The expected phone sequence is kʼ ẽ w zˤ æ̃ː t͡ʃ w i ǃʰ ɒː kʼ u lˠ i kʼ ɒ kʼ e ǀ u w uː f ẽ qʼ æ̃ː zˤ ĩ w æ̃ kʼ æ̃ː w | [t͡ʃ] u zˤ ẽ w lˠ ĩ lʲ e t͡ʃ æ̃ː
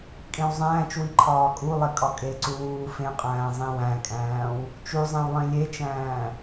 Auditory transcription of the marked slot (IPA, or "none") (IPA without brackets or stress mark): t͡ʃ